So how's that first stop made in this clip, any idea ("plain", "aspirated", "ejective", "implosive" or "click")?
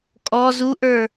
ejective